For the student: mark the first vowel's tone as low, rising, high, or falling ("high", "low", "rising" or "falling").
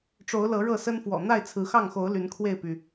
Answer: rising